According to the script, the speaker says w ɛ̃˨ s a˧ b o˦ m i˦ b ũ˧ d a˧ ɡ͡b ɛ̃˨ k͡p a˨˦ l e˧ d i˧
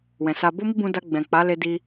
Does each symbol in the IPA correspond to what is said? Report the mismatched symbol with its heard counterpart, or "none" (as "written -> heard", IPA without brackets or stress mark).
none